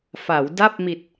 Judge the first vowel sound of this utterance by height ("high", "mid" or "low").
low